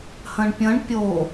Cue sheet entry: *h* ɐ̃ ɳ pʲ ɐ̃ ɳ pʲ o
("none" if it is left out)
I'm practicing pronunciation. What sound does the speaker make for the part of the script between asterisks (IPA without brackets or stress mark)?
h